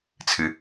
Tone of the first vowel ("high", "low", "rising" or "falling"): low